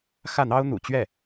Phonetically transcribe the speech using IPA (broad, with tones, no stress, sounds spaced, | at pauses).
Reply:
x ä˥˩ n̪ ɑ˥ ʊ̯ n̪ ṵ˨˩ t͡ɕ ɥ ɛ˥˩